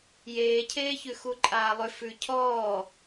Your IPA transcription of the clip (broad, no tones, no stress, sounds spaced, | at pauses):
j eː cʰ eː ç ʉ x u ǃʼ aː lˠ ʏ f ʉ cʰ ɔː